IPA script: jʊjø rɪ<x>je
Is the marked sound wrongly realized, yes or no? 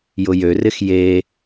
no